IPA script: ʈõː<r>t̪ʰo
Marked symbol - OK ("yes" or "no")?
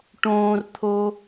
yes